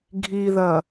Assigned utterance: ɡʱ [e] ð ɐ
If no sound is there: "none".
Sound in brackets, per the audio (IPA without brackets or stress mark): i